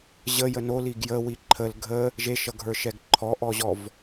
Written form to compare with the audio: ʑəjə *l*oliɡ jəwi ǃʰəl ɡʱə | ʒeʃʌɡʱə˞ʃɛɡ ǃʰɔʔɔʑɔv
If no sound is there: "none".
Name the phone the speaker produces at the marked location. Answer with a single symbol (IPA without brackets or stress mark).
n